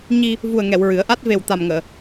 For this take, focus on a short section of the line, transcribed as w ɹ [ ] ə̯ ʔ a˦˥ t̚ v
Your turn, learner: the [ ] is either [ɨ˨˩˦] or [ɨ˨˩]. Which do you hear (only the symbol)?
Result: ɨ˨˩˦